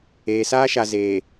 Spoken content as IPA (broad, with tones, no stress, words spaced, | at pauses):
eː˨saː˦ʃa˨ zeː˨